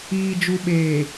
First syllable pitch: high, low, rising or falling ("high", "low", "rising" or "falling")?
low